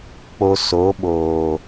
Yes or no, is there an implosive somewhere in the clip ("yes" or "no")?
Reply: yes